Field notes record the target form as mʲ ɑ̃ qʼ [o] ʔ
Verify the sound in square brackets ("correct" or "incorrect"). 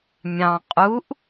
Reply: incorrect